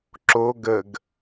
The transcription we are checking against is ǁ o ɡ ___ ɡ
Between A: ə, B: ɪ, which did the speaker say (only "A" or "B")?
A